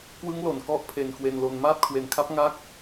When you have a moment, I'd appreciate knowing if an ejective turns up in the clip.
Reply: no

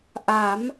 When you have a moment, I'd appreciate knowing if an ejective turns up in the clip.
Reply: no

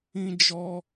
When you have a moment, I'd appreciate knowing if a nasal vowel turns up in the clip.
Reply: yes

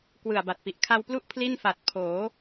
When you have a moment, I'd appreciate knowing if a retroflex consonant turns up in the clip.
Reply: no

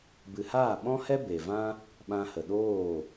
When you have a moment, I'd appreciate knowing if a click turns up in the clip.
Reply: no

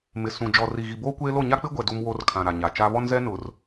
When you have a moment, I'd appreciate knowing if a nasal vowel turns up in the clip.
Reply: yes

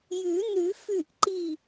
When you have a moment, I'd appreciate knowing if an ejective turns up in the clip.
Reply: no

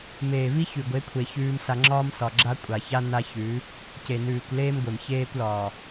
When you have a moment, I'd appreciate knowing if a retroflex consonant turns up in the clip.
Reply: no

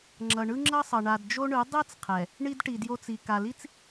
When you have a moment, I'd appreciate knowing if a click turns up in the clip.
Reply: yes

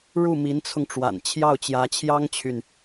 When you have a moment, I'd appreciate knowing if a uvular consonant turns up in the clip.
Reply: no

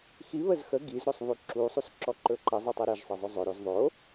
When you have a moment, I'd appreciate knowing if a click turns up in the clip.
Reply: yes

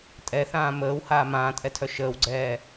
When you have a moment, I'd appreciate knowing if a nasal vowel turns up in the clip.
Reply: yes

